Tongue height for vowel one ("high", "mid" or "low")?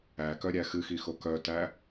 low